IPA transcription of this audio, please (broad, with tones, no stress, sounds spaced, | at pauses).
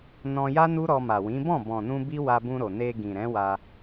n ɔ̃˧ j a˦ n u˦ ɾ ɔ˧ m a˨ w ĩ˨˦ b ɔ̃˦˨ b ɔ̃˨ n ũ˧ b i˦ w a˧ b ũ˧ ɾ o˨ n e˧ ɡ ĩ˨ ɾ ɛ̃˨˦ w a˧